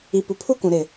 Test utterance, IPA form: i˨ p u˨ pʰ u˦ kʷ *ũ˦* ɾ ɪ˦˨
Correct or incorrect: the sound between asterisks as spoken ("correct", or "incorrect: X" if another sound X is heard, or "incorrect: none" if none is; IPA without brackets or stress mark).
incorrect: ũ˨